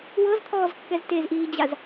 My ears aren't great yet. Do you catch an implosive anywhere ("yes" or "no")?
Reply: no